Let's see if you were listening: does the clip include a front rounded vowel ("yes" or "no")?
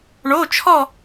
no